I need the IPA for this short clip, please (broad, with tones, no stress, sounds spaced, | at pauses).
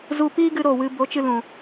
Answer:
z u˧ p iː˦ ɡ ɨ˧ ɾ o˦˨ w ɨ˧ b o˨˦ t͡ʃ ɨ˧ l ũ˨